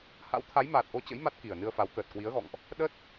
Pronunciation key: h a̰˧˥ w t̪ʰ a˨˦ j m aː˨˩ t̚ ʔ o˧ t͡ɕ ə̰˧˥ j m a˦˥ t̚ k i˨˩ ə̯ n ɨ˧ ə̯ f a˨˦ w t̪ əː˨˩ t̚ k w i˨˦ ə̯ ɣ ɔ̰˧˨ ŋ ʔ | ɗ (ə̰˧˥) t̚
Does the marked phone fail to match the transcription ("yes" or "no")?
yes